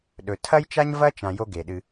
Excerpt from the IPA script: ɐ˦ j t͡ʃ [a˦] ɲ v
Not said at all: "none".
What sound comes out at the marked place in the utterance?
a˦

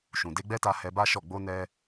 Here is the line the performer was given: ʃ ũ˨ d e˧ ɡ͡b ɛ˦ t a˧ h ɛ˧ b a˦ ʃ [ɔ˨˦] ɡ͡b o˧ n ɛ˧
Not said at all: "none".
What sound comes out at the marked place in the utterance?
ɔ˦˨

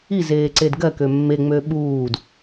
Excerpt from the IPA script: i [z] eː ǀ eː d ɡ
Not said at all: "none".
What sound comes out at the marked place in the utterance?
z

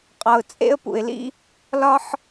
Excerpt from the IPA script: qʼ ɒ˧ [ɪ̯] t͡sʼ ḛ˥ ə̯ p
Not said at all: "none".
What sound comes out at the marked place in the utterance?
ʊ̯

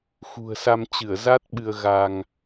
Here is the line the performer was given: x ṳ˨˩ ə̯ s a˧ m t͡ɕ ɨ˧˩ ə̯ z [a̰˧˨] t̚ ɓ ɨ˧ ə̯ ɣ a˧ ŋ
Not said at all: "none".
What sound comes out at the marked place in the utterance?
a˦˥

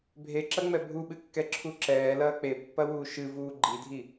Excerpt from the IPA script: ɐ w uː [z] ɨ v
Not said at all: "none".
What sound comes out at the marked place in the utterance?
ʃ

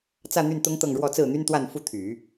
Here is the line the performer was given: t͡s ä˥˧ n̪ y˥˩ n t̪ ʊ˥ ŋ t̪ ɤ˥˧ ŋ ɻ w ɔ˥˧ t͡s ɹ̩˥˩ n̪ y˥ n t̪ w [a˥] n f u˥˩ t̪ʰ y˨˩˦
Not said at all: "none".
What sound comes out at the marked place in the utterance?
a˥˧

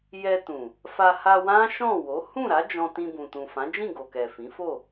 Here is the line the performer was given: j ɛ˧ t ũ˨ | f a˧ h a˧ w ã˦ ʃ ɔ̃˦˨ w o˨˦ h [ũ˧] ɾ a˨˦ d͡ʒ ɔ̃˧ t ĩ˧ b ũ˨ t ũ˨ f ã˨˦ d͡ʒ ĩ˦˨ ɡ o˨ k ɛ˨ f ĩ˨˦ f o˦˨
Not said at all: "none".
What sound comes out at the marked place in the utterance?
ũ˦˨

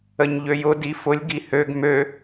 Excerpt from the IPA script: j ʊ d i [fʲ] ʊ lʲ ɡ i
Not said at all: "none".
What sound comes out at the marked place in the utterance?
f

